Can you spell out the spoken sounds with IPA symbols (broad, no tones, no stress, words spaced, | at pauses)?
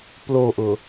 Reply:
ploʔʊ